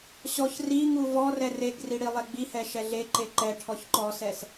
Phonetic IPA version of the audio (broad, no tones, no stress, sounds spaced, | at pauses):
ɕ ɔ ç r i ŋ u v ɔ r ɛ r e ɡ r i ɽ i lˠ ɛ ɡ͡b i h ɛ ʃ ɛ ɮ e ǃ e ǃ ɛ ʈʰ ɔ ç ǃ ɔ s ɛ s